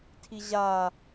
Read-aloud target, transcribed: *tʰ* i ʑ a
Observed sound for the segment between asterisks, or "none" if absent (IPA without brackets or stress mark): tʰ